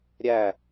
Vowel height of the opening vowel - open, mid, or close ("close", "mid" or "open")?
open